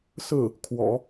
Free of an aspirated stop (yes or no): no